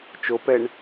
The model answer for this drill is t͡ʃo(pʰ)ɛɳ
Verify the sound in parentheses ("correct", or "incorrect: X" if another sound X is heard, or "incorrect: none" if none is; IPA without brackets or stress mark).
incorrect: p